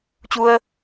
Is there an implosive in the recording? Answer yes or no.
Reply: no